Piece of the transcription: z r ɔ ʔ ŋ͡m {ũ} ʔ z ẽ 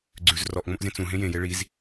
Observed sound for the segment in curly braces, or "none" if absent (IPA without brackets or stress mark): õ